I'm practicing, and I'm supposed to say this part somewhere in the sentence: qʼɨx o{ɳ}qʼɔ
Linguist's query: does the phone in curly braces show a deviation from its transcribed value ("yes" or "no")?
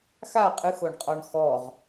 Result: no